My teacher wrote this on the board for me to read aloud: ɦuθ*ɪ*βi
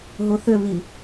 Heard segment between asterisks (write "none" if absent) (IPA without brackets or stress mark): ʏ